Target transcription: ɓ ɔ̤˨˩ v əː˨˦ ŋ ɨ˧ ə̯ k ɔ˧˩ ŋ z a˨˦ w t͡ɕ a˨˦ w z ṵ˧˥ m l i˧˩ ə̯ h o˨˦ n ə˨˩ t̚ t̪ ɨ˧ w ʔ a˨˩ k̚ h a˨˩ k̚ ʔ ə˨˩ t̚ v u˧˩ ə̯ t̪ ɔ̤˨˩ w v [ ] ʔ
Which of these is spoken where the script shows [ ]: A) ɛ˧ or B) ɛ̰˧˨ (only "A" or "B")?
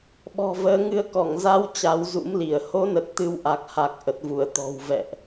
B